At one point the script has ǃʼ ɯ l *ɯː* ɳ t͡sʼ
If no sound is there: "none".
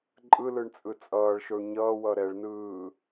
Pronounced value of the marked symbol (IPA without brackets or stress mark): ɯ